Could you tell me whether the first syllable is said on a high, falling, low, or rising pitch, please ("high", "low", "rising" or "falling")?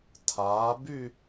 rising